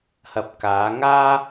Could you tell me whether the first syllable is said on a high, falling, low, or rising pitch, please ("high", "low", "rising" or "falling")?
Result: low